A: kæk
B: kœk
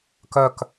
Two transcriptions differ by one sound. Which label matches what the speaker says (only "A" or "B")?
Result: B